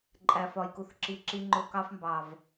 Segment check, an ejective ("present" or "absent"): present